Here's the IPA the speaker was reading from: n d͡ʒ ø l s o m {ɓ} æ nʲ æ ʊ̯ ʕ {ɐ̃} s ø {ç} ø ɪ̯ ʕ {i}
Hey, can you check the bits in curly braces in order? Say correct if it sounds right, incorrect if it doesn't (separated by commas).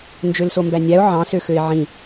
incorrect, incorrect, incorrect, incorrect